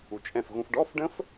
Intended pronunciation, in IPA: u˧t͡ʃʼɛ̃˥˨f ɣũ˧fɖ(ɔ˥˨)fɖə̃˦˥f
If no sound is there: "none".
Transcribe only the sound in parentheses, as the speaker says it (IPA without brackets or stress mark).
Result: ɔ˧˥˧